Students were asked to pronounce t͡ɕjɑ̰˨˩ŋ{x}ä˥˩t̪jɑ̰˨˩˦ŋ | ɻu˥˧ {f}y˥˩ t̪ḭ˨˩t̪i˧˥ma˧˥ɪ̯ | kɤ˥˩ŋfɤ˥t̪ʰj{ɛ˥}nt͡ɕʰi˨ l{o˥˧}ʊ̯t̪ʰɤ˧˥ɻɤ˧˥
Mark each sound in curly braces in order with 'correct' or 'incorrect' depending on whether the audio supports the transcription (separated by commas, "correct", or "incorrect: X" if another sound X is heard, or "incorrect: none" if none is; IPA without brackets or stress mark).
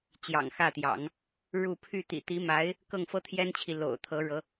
correct, incorrect: pʰ, correct, incorrect: o̰˨˩